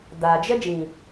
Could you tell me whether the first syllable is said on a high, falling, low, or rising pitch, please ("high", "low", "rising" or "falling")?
low